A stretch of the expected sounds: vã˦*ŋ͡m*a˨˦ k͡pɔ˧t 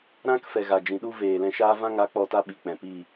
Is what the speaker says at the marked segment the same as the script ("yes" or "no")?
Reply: no